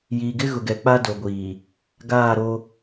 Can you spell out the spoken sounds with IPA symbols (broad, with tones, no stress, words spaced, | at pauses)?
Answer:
jiː˨ɡɪ˦ɣʊ˨ɡɛ˨ k͡pa˦do˨ɡʷiː˨ | ɡaː˦˨ɾo˦